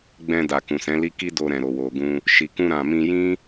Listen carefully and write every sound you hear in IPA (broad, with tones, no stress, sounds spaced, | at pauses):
ɡ͡b ɛ̃˧ d a˨ k ũ˨ s ɛ̃˨˦ l i˦ k i˦ d o˧ ɾ ɛ̃˨ ɾ o˨ w o˨ ɡ ũ˧ | ʃ i˨ k ũ˧ ɾ ã˨ m ĩ˧ j ĩ˦